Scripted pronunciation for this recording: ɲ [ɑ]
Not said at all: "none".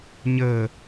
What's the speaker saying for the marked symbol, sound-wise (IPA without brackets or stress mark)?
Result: ə